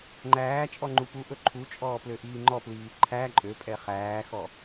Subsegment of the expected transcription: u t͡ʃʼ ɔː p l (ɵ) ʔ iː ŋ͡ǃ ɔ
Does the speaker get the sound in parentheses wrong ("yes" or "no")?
yes